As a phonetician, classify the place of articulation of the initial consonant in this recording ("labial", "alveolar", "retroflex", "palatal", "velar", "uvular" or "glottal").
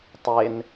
alveolar